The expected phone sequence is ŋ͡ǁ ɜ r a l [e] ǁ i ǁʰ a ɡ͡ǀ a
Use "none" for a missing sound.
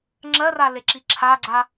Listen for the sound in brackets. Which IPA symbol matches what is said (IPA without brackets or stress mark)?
e